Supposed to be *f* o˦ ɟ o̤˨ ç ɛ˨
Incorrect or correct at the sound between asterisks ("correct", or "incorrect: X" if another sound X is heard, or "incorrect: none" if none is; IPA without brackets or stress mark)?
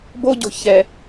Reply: incorrect: b